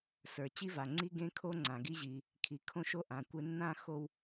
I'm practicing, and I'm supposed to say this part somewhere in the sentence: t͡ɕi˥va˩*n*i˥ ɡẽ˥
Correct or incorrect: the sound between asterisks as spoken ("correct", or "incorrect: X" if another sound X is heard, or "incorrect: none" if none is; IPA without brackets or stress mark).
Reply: incorrect: ŋ͡ǀ